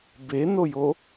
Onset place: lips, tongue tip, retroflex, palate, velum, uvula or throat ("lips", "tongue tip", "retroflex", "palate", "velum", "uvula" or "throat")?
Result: lips